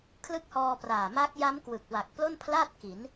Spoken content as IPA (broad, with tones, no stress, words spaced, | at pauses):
kʰlɯ˦˥k̚hɔː˧praː˨˩ ma˦˥k̚ ja˦˥mkwɯ˨˩k̚ wa˨˩k̚plo˥˩npʰla˥˩t̚ ki˩˦n